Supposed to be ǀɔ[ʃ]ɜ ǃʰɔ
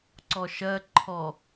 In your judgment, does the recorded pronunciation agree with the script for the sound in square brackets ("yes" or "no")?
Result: yes